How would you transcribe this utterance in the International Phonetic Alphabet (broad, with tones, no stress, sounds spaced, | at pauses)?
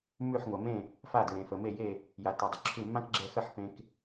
m ʉ˧˩ ħ ŋʷ ɐ˩ m ẽ˧˩ | f a˧˩ d ɹ ẽ˩ f ə˩ m e˧˩ j e˧˩ | j a˩ t e˩ dˤ ə˩ ǁʰ ʉ˧˩ mː ã˦ k ɡ͡ǁ ɛ˧˩ x ə˧˩ ħ p ẽ˩ k